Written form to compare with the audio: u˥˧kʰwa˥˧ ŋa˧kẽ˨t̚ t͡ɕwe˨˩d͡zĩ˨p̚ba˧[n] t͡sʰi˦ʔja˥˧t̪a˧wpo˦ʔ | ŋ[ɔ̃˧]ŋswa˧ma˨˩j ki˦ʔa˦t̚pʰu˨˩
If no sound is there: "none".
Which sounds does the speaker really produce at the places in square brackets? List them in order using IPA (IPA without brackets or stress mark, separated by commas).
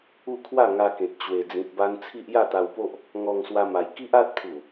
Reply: n, ɔ˧